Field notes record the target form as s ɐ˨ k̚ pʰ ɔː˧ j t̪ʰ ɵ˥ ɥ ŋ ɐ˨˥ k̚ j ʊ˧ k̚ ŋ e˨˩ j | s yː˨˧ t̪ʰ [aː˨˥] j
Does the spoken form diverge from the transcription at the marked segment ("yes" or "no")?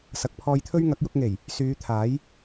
no